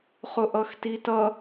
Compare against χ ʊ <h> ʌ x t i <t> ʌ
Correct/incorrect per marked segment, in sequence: incorrect, correct

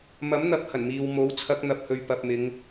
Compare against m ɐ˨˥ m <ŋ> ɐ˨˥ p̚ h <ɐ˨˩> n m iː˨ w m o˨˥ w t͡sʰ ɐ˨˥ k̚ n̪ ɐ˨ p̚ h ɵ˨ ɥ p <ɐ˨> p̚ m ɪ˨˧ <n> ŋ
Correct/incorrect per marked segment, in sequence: incorrect, correct, correct, incorrect

